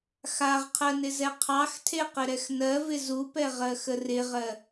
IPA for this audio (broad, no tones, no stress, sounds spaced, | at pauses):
x a ʁ qʰ ɜ n ɪ z ɛ qʰ ɑ x tʰ e q ɪ ɾ ɛ x n ɜ v ɪ z u p ɛ ʁ ɜ x ə r ɪ ʁ ɜ